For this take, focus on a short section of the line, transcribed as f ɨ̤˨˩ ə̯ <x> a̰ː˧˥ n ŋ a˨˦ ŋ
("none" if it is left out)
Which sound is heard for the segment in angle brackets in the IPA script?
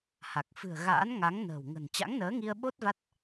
ɣ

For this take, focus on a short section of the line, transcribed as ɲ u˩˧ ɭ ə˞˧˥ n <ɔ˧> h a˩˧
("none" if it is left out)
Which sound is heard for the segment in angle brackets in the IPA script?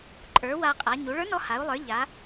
ɔ˧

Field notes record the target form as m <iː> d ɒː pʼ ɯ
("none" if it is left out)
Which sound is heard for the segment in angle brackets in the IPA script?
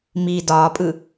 iː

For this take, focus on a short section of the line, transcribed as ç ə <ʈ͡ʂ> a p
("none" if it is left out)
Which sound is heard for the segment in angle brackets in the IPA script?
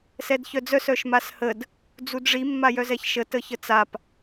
t͡s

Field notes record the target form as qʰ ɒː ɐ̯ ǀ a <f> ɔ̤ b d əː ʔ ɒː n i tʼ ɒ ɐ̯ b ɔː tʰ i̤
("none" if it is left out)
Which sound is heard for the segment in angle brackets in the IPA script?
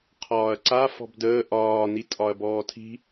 f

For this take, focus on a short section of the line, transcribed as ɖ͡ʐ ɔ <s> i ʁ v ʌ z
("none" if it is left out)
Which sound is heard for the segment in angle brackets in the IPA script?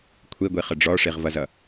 ʂ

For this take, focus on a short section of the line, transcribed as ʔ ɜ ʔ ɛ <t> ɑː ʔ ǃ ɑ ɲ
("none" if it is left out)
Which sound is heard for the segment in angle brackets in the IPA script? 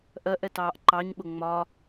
t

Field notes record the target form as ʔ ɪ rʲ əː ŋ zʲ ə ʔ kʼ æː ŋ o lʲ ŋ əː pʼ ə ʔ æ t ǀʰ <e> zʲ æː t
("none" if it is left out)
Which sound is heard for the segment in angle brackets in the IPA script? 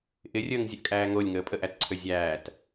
ø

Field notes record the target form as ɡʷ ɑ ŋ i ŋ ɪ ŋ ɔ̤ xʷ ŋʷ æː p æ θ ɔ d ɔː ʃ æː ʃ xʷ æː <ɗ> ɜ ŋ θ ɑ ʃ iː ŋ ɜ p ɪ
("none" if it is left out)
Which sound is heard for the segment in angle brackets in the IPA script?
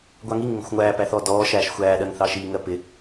ɗ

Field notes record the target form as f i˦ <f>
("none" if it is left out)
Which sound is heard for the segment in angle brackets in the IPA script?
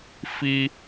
none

